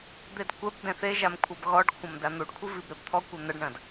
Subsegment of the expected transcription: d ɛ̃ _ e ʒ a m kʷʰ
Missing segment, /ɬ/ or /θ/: θ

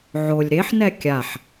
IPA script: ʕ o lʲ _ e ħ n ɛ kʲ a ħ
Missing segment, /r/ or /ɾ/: ɾ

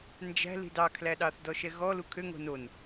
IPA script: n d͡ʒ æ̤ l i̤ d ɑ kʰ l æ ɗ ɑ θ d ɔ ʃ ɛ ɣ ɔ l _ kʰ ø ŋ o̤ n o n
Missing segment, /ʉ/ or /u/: u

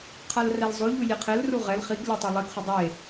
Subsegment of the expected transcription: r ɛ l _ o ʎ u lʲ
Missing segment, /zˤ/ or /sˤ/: zˤ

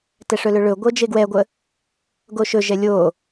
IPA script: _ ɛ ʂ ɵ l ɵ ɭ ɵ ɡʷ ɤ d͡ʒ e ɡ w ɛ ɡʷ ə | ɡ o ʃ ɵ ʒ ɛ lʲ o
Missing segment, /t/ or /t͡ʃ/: t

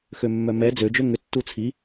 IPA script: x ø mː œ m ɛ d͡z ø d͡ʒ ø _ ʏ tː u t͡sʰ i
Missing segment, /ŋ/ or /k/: ŋ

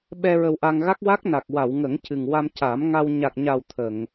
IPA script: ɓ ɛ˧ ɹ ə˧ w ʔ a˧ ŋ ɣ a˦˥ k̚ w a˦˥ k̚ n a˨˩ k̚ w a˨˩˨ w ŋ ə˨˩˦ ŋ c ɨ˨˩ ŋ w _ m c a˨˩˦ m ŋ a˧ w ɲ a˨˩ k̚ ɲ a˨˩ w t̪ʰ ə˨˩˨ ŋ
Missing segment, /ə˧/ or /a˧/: a˧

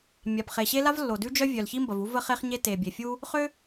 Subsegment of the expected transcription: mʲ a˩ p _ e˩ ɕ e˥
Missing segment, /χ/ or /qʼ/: χ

